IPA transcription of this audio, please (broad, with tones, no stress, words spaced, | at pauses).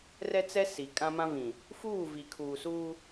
rɛ˦t͡sɛ˦ si˨ kʼã˦mã˦vĩ˨ | fuː˦˨vi˨kʰuː˨suː˦